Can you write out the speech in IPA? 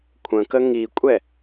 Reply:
kʷʰ ə̃ k ə ŋ i kʷʼ ɛ

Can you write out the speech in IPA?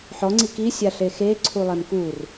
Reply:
ħ ɔ ŋ͡ǀ i k i sʲ a ɬ e x e ǀʰ u lˠ ɛ m k u r

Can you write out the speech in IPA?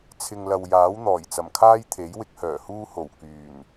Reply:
t͡sʰ ɪ˨ ŋ l ɐ˨ w j aː˨˥ w n̪ ɔː˨˩ j t͡s ɐ˨˩ m kʰ aː˥ j t̪ʰ e˨˥ j w ɪ˧ k̚ h œː˨˩ h uː˥ h o˨˩ w k yː˨˩ n

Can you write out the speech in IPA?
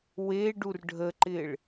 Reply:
w e ɖ u r ɖʱ ə ǃ ɪː ɭ

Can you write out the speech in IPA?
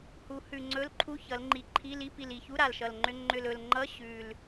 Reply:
h u˩˧ h ʉ˨˩ ŋ͡ǀ ɵ˧˥˧ l ǃʰ u˧˥˧ ç ʌ˩˧ l ŋ͡ǃ i˨˩ ǃʰ i˧˥˧ l i˧˥˧ p i˨˩ l i˨˩ ç u˧˥˧ ɾ a˨˩ l ʃ ʌ˨˩ l ŋ͡ǃ ʏ˧˥˧ ŋ͡ǃ ʏ˨˩ l ɵ˨˩ l ŋ͡ǃ ʌ˧˥˧ ɕ ʉ˨˩ l

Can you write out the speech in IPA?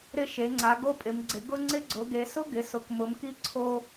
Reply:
ɾ ɪ˧ ʃ e˩˧ ŋ͡ǀ a˩˧ ɡ o˧ pʼ ɪ˩˧ m ɡ͡ǀ ɪ˩˧ ɡ ʊ˧ ŋ͡ǀ ɪ˧ ɡ͡ǀ ʊ˩˧ ɡ e˩˧ s ʊ˧ ɡ ɪ˩˧ s ʊ˩˧ k m ʊ˩˧ m k i˧ ǀʰ o˧

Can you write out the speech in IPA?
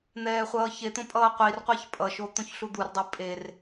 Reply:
n̪ ɛː χʷ ʌː ç e t̪ õ pʼ ʌː qʷ i r qʷ a ç pʼ ʌ ʃ o t̪ õ ç ɬ u d̪ u r dˤ i pʼ e r

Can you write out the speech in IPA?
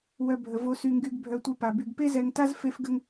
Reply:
w œ˨ bʱ ə˩ v o˨ s y˨ ŋ ɡ y˨ ɡ bʱ œ˨ tʷ i˨ p a˩ b y˩ ɡ p e˦ z ɛ˨ ŋ t a˥ z f e˦ f ɡ ə˦ ŋ

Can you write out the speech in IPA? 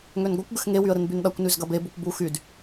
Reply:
ŋ ø n ɡʷ ɐ kʷ ɡ ʏ x ŋ e w y ə̯ ɾ ɪ n b y n ɗ ɐ kʷ n y z ɡ ɐ b e b u kʷ b u x y d

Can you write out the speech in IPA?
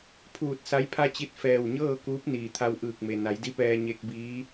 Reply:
pʰ uː˧˩ t̚ s a˧˥ j pʰ a˥˨ t͡ɕ i˧ t̚ f ɛː˧˩ w ɲ ɤː˥˨ k uː˧˥ p̚ n iː˩ t̪ʰ a˧ w ʔ ɯː˧˩ k̚ m e˩ n a˩˧ j d i˧˥ p ɛː˧ ɲ e˧ k̚ b iː˧˥

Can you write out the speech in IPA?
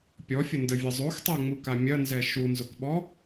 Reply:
pʲ ɔ fʲ ə n d ə vʲ ə zˤ o x tˤ ɛ ŋ͡m u k a mʲ ɐ n z ɛ ʃ u n z ʊ k ɓ ɔ

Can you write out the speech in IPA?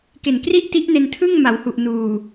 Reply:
k e˨˩ n k r i˥˩ ʔ t i˦˥ ʔ n e˧ n tʰ ɯ˥˩ ŋ m a˩˦ w h u˨˩ ʔ n uː˨˩

